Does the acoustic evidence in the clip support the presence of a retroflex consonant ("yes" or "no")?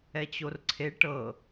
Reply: yes